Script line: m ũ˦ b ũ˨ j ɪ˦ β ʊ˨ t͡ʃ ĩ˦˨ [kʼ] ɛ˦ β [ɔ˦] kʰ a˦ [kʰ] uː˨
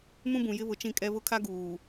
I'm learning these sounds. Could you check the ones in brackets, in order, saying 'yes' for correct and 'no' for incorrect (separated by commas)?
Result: yes, no, no